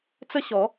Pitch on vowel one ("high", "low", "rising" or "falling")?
high